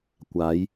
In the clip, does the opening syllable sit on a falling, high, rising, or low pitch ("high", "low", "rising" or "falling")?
rising